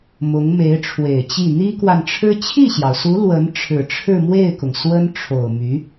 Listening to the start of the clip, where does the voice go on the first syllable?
rising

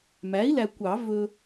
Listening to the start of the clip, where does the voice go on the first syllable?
rising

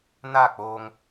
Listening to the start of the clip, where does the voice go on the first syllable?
falling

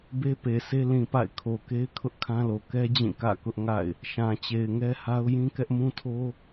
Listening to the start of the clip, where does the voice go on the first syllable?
high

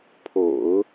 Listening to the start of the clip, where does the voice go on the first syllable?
low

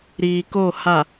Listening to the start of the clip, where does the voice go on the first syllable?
low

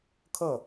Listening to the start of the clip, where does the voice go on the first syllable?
falling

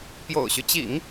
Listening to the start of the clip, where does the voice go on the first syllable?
low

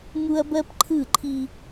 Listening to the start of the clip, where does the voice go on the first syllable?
high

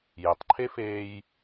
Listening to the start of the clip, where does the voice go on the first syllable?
low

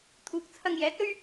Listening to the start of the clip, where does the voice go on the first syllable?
low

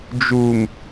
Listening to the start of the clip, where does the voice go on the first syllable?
low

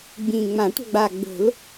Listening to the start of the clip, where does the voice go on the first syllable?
low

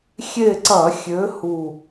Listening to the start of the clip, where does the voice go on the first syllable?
falling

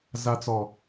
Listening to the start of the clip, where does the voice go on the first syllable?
high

